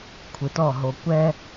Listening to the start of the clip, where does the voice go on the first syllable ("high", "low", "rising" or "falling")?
low